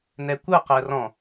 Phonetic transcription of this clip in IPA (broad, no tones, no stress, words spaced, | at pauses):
nɛkʷɤqɜ rɔ̃